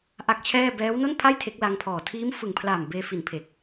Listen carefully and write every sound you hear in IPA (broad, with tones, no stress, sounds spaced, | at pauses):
ʔ a˦˥ k̚ t͡ɕʰ ɛː˥˩ b ɛː˦˥ w n o˥˩ n pʰ a˥˩ j tʰ e˦˥ k̚ l a˦˥ ŋ pʰ ɔː˨˩ tʰ iː˦˥ m f ɯ˨˩ ŋ pʰ l aː˨˩ m b eː˧ f i˨˩ n pʰ e˨˩ k̚